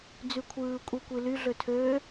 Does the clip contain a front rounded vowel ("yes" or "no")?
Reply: yes